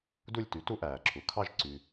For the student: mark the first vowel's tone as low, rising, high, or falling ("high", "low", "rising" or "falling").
falling